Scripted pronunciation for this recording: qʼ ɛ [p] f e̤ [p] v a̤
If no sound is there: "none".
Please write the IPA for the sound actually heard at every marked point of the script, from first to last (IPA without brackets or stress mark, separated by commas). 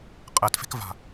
t, k